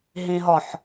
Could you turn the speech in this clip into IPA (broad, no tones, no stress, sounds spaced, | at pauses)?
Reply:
ɦ ĩ ɦ ɔ ħ